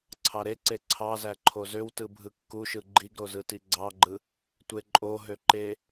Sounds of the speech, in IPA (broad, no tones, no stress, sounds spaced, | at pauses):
ǀʰ ɑ ɾ e ǀ e ǀʰ ɑ z æ ǃʰ o z ø w t ɯ bʱ ɯ kː u ʃ ɯ ɡ͡ǃ i ɡ ɾ o z ɯ t i ɡ͡ǀ ɑ ɡ͡ǃ ɯ | tʷ e ǃʼ o ɦ ø ǃ e